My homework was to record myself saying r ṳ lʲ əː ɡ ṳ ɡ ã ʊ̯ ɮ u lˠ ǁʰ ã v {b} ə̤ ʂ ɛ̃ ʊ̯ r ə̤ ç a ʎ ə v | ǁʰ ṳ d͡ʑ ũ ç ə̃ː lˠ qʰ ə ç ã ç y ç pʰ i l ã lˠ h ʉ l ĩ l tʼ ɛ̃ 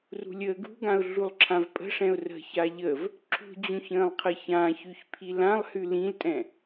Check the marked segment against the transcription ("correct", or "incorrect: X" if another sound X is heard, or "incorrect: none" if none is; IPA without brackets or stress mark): incorrect: pʼ